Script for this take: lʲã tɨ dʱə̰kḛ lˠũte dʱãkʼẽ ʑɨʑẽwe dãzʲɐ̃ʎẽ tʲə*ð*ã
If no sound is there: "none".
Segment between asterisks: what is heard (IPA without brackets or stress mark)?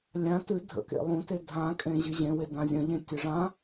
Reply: ʐ